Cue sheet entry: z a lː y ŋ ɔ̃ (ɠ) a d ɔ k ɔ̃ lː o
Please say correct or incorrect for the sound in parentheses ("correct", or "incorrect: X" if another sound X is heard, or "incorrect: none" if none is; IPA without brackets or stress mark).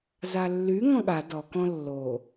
correct